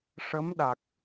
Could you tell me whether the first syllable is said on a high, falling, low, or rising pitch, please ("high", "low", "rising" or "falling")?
rising